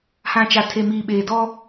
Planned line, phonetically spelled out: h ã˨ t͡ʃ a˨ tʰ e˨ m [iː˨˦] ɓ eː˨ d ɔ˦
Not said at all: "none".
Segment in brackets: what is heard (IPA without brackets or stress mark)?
iː˨